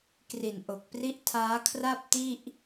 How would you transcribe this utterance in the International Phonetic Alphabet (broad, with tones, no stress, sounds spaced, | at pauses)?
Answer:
k r i˨˩ n ʔ o˨˩ k̚ p r i˦˥ ʔ tʰ aː˦˥ kʰ r a˥˩ p̚ t i˥˩ ʔ